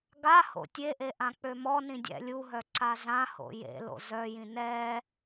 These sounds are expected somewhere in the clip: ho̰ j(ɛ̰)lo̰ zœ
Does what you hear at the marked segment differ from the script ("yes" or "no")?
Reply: yes